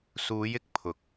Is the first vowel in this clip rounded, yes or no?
yes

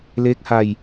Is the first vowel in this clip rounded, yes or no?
no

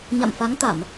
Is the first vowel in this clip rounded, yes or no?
no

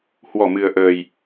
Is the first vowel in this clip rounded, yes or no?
yes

